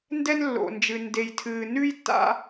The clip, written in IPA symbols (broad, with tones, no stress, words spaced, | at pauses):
ndɛ˦nlːo̰˨nd͡ʒɨ˨ nde˨jtʰɨː˨ nʉ˦jtːa̰˦